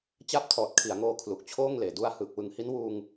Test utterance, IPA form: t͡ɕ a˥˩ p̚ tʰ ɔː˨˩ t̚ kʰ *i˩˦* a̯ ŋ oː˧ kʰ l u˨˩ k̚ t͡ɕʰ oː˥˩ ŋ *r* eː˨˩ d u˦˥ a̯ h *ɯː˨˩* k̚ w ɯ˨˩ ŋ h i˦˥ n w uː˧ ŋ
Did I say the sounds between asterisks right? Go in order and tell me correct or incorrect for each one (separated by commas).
correct, incorrect, correct